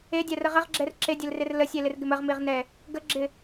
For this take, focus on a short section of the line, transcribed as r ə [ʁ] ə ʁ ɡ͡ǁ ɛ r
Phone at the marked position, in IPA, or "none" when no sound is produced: ʁ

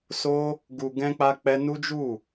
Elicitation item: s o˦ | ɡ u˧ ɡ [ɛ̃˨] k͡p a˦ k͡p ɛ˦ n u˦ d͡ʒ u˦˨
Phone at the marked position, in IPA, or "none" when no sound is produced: ɛ̃˦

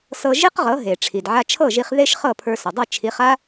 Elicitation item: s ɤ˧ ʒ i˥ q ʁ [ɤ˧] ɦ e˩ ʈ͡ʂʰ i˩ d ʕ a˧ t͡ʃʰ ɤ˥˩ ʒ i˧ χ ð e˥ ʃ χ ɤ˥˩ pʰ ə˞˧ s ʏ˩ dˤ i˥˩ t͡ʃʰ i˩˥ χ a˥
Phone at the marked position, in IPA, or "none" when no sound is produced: ɤ˩˥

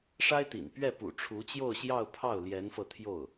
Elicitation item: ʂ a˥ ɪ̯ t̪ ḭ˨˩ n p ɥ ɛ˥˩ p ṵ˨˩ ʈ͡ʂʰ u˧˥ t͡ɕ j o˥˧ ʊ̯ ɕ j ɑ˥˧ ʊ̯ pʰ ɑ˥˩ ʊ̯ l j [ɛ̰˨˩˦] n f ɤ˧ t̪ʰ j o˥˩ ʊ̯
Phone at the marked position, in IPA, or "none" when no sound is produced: ɛ˧˥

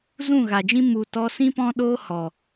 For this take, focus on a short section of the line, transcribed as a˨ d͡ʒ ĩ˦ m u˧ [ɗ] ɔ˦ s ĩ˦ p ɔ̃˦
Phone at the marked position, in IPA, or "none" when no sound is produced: t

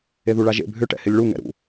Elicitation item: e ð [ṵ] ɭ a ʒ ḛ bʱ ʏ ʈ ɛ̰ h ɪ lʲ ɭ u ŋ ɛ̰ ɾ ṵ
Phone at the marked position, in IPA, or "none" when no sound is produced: u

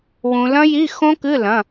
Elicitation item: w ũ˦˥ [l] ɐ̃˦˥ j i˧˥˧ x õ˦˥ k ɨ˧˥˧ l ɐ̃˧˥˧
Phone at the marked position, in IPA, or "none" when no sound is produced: l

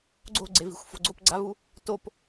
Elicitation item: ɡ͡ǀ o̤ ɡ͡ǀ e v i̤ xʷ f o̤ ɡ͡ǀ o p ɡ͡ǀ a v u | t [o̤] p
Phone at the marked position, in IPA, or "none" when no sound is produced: o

